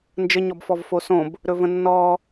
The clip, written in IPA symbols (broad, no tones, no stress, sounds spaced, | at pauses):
n d͡ʒ ə ɲ ɔ b f ɔ v f o s õ b | ɾ ɵ v ə̃ nː ɔ